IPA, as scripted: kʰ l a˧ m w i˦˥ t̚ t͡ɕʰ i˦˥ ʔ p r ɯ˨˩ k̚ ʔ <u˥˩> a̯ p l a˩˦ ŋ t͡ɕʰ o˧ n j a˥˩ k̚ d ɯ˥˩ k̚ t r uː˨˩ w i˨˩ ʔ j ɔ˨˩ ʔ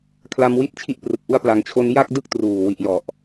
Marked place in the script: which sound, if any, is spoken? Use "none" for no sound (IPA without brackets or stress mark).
u˧